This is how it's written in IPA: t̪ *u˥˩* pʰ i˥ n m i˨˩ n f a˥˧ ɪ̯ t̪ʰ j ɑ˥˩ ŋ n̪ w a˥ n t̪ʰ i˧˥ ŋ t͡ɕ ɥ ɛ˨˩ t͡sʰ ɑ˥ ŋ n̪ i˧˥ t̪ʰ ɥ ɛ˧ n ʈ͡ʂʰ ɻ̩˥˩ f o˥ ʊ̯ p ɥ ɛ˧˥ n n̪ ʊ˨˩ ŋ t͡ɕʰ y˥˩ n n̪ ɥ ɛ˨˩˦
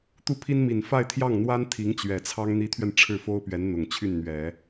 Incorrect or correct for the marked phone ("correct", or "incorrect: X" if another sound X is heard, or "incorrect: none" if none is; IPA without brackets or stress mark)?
correct